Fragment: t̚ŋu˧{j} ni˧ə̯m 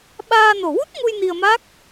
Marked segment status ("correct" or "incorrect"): correct